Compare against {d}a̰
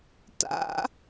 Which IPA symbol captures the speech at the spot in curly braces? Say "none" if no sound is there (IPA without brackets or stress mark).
t